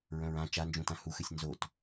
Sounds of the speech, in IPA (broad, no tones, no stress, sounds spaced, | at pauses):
ɹ œ̃ ɹ ã t͡ʃ a n d͡ʒ ũ t ã h u x ɨ sʲ n z o t